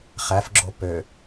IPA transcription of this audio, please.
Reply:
χ æ f ɡ͡ǁ o p ø

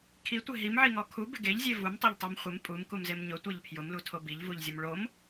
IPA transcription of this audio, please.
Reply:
kʰ i tʷ ɪ ɦ i m ʕ i ŋ ɔ kʰ u b ɪ ɡ e ʎ zʲ e v u m tˤ e ʎ tˤ u m χʷ ɪ m pʼ u m k u m z e m ɲ ʊ tʷ ɛ ʎ pʰ j ʊ m l u tʰ o b i ʎ v u ʎ zʲ ʊ m ɭ o m

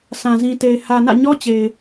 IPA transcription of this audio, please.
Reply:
sʰ ã˨ z ĩ˨ t e˨ ɪ̯ h ä˨ n ä̰˦˨ ɲ ɔ˦ t͡ɕ e˨ ɪ̯

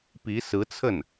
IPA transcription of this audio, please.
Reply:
p i˧˥ s ɹ̩˧˥ t͡sʰ ə˥˩ n

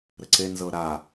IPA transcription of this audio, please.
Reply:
ɾ ə ǀ e n z ɤ ɾ a

